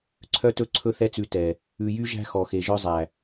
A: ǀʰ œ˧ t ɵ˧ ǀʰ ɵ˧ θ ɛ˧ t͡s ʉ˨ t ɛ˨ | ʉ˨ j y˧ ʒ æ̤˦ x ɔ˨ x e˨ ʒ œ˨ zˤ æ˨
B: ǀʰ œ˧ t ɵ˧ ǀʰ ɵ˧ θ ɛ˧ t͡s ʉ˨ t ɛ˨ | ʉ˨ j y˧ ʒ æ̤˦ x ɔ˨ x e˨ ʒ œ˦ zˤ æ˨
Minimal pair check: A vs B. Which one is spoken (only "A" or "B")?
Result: B